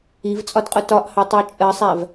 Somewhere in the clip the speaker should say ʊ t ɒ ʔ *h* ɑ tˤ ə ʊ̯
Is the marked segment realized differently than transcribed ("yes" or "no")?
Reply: no